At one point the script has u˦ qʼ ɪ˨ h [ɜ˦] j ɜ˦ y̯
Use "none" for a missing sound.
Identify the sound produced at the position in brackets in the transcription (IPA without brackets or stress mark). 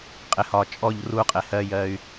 ɜ˦